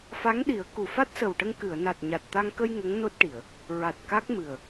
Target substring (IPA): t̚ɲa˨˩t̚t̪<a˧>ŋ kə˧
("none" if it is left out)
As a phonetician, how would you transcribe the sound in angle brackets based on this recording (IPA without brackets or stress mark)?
a˧